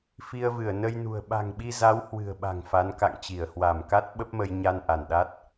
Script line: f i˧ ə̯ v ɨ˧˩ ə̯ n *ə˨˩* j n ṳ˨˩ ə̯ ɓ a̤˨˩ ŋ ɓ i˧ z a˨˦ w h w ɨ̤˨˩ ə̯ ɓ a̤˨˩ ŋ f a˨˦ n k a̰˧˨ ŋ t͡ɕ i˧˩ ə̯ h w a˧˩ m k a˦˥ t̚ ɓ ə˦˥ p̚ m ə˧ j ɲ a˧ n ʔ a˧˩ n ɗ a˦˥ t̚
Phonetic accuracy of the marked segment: incorrect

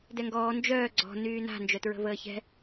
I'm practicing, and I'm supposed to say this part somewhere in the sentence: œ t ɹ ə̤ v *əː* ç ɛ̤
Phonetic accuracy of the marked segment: correct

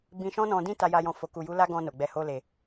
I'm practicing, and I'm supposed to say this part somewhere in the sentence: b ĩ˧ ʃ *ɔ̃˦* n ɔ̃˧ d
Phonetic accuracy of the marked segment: correct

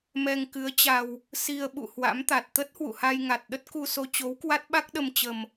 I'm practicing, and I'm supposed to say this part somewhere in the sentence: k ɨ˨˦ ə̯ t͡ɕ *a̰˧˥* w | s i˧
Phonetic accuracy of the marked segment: incorrect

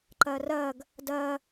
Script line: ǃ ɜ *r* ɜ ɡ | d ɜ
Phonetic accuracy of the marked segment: correct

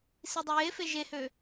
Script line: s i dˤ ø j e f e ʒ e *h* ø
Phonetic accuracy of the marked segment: correct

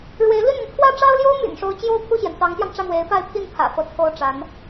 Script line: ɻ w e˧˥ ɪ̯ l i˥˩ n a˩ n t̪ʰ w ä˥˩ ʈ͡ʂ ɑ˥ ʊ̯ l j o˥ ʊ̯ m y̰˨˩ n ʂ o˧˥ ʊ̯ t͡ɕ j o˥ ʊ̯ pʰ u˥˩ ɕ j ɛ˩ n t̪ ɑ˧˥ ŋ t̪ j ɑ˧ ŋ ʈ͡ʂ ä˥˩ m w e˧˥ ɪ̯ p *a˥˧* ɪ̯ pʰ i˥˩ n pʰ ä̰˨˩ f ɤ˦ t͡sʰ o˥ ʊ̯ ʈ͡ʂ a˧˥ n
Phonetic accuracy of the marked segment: correct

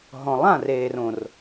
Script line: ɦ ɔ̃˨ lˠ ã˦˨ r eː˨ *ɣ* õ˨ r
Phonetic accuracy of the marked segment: incorrect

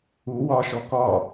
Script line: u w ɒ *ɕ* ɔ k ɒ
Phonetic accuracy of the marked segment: incorrect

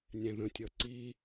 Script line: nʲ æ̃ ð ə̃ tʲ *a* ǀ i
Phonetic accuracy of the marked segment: incorrect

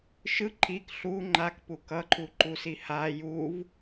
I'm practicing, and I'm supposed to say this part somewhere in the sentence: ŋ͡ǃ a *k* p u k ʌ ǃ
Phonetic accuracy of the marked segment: correct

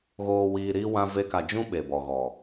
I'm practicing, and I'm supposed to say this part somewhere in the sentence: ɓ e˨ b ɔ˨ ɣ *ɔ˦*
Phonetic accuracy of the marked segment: incorrect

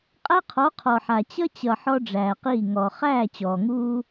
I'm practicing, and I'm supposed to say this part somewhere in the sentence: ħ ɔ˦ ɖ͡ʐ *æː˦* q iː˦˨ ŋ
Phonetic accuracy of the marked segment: incorrect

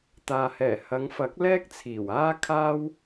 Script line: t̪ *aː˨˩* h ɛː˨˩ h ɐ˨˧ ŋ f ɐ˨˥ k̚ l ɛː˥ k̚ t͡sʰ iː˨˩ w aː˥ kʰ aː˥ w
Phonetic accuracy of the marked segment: incorrect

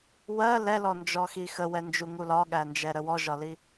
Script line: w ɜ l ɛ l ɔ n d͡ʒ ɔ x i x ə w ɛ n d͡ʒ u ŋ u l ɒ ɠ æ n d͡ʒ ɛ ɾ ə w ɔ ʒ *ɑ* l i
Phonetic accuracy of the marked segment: incorrect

